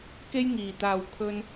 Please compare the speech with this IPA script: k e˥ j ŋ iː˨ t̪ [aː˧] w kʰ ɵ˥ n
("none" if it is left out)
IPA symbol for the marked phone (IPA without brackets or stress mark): aː˧